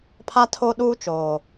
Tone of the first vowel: high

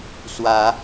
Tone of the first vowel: rising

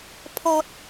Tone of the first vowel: low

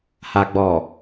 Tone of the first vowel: low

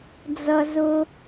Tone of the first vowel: high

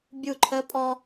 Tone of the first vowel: falling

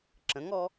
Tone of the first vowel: rising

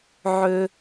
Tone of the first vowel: high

